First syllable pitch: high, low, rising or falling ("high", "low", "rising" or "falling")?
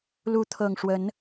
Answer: rising